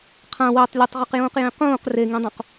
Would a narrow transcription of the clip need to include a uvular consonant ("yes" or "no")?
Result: yes